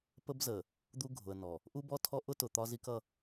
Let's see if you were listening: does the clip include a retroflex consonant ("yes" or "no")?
no